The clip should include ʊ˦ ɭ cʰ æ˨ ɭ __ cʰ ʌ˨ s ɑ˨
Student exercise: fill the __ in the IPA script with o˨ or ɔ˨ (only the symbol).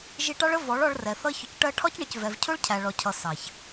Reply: ɔ˨